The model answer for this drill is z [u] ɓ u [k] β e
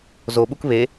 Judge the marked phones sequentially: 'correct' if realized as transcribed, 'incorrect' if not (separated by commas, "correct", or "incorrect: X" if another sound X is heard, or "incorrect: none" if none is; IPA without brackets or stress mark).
incorrect: o, correct